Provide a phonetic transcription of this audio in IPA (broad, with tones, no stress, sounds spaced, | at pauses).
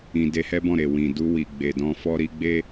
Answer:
ĩ˨ d e˧ h ɛ˦ b ɔ̃˦˨ ɾ e˨ w ĩ˨ d u˧ w i˨ ɡ͡b e˨ d ɔ̃˧ f ɔ˧ ɾ i˧ ɡ͡b e˦